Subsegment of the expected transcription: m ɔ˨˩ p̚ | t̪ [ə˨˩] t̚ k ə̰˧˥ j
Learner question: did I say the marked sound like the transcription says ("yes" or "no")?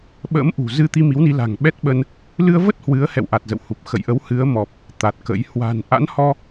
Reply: no